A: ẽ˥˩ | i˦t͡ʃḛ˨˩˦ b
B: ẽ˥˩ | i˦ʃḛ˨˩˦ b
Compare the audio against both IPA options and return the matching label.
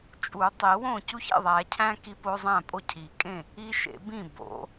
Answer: B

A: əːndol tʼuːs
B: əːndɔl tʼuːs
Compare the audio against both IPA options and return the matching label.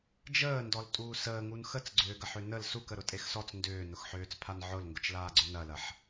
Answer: B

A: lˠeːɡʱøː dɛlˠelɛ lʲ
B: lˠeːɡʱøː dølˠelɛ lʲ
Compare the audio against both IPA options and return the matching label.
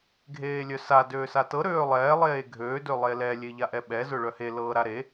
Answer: B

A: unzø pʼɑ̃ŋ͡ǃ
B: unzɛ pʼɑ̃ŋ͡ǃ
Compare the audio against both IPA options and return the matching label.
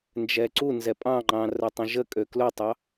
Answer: B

